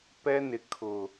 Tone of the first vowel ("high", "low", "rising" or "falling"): high